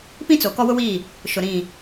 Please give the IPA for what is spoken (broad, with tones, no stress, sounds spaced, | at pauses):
p ĩ˦ t͡s o˨ k ɔ˦ w ʊ˦ w iː˦˨ | ʃ ʊ˨ ɾ ĩ˦˨